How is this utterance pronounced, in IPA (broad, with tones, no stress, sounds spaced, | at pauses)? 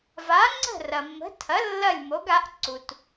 v a˩˥ ŋ͡ǀ ə̤˥˩ r ɐ˩ mː ə̤˩˥ tʰ ɐ˩˥ lː ɐ˥˩ lʲ m o˩˥ ɡ a˩˥ ʔ ǀ u˩ t